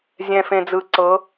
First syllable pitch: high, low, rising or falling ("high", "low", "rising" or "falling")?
low